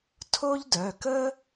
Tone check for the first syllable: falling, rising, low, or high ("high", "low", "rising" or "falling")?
high